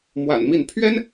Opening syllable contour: low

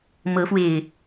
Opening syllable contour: rising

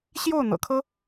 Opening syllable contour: falling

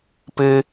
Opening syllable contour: low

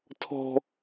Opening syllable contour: high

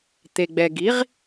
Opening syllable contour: low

